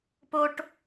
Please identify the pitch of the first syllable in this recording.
high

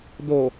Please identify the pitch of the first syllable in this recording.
low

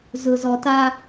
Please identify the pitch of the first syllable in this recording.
low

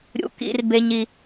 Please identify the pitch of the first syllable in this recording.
high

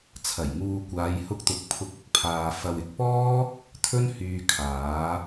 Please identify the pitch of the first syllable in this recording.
low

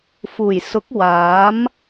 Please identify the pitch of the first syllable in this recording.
low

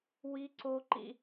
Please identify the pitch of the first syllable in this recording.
high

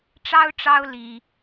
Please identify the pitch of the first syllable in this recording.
high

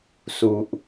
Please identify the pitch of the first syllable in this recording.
low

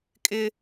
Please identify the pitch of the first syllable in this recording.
high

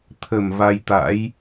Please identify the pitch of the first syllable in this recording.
low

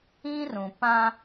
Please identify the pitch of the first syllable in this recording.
high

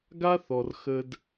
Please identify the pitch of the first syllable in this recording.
high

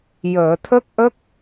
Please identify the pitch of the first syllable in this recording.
low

